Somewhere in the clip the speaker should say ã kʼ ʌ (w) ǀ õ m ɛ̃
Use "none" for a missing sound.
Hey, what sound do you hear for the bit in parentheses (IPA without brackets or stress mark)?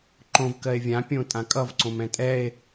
v